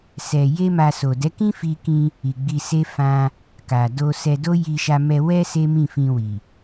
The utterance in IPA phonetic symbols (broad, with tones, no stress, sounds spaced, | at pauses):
s ɛ˧ j e˦ m a˧ s o˨ d ɛ˨˦ k ĩ˦ f i˧ k ĩ˧ | i˨ ɡ͡b i˧ s e˦ f ã˧ | k a˨ d o˧ s ɛ˧ d o˦ j i˧ ʃ a˧ m ɛ˧ w ɛ˦ s e˦ m ĩ˦˨ f ĩ˧ w i˨